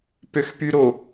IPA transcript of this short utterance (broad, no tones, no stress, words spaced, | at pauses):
pøxpyɾo